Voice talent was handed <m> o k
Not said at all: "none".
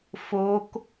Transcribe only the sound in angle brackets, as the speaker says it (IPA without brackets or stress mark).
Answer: f